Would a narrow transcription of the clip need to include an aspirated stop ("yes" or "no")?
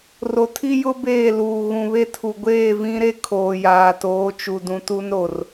yes